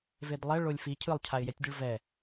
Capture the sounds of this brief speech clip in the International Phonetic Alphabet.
v e d lˠ ɛ ɭ o lʲ f i cʰ ɯ lˠ cʰ a ɪ̯ j ɛ tʲ dʲ ɯ ɭ v ɛ

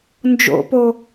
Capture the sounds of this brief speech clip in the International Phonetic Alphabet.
n d͡ʒ o̰ p o

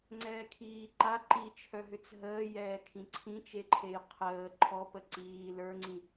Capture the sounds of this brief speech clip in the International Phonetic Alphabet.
ŋ͡ǀ ɛː kʰ iː ǃ a ǃ i t͡ʃʰ œ ɦ ʏ t͡s ɦ əː j ɛː kʰ ĩ ǀʰ ĩ t͡ʃ e ǃʰ e j qʰ əː ǃʰ ɔ p ə ǀ iː l ə˞ ŋ͡ǀ ĩ

